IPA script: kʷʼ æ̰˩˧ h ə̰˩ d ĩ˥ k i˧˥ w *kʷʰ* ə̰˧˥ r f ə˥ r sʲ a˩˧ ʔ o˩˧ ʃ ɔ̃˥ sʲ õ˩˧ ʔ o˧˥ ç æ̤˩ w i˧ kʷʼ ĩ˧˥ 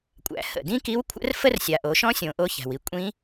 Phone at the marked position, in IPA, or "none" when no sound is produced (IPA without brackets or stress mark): kʷʰ